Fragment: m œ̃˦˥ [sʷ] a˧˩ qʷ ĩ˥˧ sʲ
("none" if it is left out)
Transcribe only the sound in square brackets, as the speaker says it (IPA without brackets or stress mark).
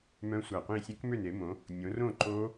sʷ